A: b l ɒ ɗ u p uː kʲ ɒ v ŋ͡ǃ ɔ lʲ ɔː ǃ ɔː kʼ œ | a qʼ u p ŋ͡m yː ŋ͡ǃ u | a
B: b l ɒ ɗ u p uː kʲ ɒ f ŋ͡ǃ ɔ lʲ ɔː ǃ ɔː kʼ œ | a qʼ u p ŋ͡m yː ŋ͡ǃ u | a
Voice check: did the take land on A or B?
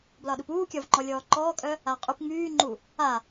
A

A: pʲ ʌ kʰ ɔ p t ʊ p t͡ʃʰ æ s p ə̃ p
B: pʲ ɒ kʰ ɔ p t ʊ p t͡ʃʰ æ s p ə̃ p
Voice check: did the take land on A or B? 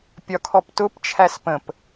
B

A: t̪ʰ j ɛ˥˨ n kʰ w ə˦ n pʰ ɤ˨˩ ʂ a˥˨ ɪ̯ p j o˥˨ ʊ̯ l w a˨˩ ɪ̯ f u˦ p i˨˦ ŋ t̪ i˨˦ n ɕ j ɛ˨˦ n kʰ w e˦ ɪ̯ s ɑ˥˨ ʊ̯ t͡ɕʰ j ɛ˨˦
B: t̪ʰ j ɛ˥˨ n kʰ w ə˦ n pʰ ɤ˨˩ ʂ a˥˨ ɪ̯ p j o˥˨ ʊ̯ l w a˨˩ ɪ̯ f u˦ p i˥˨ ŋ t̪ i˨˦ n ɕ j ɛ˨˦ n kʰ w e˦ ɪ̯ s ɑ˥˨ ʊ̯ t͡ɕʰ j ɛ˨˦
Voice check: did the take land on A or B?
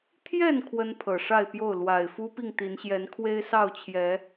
B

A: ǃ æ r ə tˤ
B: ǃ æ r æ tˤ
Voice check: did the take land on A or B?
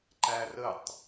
A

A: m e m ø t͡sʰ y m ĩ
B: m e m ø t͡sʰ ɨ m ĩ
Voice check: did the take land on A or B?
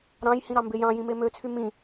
A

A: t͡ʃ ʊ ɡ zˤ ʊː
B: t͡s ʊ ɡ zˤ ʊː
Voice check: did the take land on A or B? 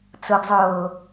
B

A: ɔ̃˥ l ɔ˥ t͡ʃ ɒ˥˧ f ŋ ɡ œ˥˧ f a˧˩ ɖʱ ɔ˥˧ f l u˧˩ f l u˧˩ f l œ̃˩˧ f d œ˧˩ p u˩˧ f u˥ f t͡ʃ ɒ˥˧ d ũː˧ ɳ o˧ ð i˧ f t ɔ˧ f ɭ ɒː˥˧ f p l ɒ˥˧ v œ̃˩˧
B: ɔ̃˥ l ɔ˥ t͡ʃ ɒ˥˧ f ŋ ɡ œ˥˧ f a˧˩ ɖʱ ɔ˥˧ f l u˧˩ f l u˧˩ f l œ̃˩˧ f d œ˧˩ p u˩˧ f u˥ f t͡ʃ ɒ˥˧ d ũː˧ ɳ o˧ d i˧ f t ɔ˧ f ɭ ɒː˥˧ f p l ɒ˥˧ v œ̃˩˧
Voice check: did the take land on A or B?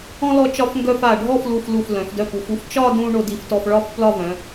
B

